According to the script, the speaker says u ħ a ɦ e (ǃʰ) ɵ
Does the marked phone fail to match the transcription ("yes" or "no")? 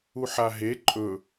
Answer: yes